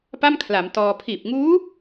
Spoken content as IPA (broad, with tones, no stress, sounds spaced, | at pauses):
p a˥˩ m kʰ l a˩˦ m t ɔː˧ pʰ iː˨˩ p̚ ŋ uː˦˥